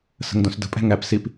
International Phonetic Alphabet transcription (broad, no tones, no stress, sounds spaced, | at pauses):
s ə̤ ŋ d õ s d ə̤ pʼ ɛ̤ ŋ æ p s i p